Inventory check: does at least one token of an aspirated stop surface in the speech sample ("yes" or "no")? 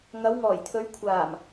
yes